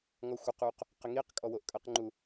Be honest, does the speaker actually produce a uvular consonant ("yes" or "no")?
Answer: yes